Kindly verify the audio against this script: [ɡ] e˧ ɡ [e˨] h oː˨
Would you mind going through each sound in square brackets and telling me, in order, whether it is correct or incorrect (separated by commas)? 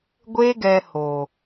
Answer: incorrect, incorrect